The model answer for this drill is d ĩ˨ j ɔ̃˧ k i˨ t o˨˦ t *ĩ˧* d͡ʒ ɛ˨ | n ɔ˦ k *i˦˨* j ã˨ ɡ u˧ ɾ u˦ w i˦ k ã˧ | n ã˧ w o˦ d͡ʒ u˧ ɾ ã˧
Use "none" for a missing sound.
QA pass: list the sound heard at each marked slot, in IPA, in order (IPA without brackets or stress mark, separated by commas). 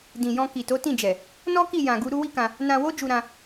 ĩ˦˨, i˦˨